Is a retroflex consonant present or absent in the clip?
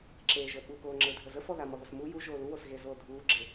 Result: absent